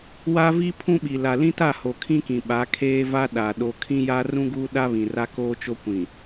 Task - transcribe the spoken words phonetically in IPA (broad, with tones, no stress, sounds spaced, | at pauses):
w a˦ v i˦ pʰ ũ˦ ɓ i˨ l a˨ l ĩ˦ t a˦˨ h o˨ kʰ ĩ˦ k ĩ˨ ɓ a˨˦ kʰ eː˦ v a˦ ɗ a˨ ɗ o˨ kʰ ĩ˦ j a˦ r ũ˦ ɡ uː˦ ɗ a˦ β ĩ˨ r a˦ k oː˦ t͡ʃ o˦ kʷ ĩ˨